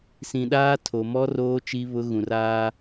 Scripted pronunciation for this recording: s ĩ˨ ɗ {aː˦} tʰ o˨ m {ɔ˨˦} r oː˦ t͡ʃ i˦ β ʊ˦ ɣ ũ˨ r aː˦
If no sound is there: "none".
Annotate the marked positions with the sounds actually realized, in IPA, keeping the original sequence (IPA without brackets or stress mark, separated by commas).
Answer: aː˦, ɔ˦